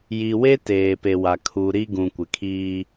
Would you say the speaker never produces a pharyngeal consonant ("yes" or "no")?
yes